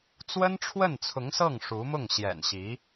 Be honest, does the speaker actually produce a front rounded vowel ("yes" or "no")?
no